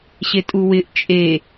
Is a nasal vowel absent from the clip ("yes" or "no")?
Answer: yes